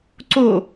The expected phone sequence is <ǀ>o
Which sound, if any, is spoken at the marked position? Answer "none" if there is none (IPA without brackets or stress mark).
ǀ